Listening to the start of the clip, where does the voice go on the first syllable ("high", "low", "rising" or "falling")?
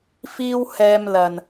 high